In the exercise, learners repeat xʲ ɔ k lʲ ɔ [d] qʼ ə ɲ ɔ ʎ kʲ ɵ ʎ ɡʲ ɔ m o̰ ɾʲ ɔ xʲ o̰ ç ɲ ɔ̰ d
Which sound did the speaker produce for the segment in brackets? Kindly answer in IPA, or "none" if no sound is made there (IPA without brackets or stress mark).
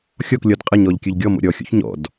d